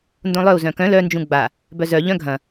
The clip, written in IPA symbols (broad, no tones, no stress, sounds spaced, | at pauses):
n d õ lˠ œ u̯ z œ̃ k œ̃ l œ n d͡ʒ ũ ɡ͡b a | b œ z œ ʎ œ̃ ɡʱ ɐ̃